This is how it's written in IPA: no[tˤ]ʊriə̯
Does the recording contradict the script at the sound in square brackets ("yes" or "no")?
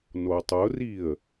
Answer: no